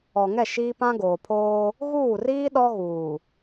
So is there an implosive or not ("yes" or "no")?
yes